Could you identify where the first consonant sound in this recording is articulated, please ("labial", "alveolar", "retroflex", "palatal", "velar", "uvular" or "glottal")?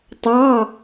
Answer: alveolar